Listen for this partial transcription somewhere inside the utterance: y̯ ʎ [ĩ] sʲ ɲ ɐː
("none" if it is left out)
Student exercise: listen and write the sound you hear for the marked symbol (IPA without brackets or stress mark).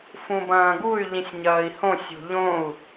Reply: ĩ